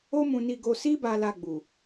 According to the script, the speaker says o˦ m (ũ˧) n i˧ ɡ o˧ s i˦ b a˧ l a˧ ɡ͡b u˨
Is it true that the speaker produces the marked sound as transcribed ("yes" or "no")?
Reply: yes